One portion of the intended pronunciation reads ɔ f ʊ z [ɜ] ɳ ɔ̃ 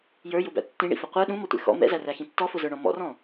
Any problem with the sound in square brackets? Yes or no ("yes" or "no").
yes